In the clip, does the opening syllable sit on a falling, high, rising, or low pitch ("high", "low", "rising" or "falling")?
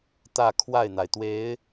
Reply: falling